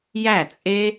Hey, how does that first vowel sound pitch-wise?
falling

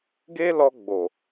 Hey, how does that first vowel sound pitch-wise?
high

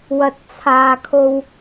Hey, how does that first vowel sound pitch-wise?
low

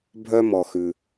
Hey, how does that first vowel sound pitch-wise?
high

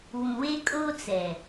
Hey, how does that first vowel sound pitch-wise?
low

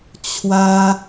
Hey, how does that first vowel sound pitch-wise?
high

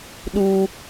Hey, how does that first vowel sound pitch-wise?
high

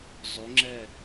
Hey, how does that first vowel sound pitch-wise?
rising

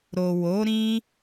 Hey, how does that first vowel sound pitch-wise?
low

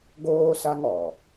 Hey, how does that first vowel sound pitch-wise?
high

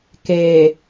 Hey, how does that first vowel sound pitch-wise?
low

